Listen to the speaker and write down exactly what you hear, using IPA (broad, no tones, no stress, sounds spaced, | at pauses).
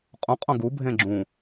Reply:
qʼ ũ qʼ õ ɡ u bʱ ẽ ɡ͡ǁ ũ